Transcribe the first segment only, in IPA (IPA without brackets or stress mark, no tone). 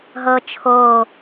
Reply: ɦ